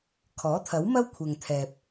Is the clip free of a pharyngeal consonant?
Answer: yes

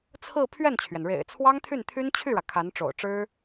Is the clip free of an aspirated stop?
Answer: no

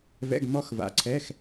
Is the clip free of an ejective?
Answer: yes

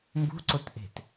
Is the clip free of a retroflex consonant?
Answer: yes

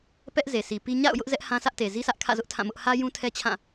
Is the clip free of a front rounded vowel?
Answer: yes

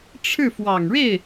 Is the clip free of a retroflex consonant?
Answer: no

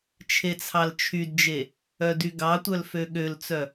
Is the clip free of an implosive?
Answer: no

